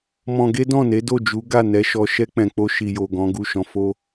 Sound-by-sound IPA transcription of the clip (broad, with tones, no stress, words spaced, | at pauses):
mɔ̃˧ɡe˦dɔ̃˦˨ne˨˦ do˦˨d͡ʒu˨˦ ɡa˦˨nɛ˧ʃɔ˧ ʃɛ˧k͡pɛ̃˨ k͡po˧ ʃi˨jo˨ ɡɔ̃˨˦ɡu˦˨ ʃɔ̃˨fo˧